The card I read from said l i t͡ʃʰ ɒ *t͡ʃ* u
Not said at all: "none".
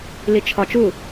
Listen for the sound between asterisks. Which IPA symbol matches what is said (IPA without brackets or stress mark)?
t͡ʃ